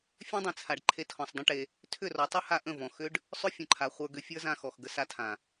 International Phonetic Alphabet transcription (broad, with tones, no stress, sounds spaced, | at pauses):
fʲ ẽ˦ dˤ ẽ˨ t͡sʰ a˨ ɖ ǃʰ e˧ tʰ ɔ̃˨ sˤ dˤ ə̃˦ ʈ e˧ | tʰ ʏ˦˨ r ɔ˨˦ tˤ ɵ˦ h a˦ ʔ ə̃˦˨ v ɔ̃˨ x ʏ˦ ɖ | sˤ ʏ˦ fʲ ə̃˨ ǃʰ a˨ χʷ ə˞˧ ɡ ʏ˧ fʲ ə˞˦ z ã˧ x ɔ˨ x ɡ ə˧ s a˧ tʰ ã˨